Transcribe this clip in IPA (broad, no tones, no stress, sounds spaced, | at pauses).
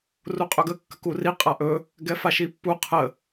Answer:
r u qʼ ɵ ɡ ə kː ə k u r i qʼ a ʔ ɵ | ɡ ɛ f a ʃ i pː u qʰ ə